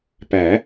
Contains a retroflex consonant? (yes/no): no